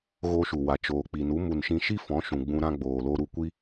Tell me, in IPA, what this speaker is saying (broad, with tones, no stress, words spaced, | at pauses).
ɣo˧ʃu˨ wa˨t͡ʃoː˨k͡pi˨nu˨˦ mu˨n ʃĩ˧ʃi˦fɔ̃˨˦ ʃũ˨ɡ͡bũ˧ ɾã˧ ɡ͡boː˨lo˧ɾu˧ kʷi˦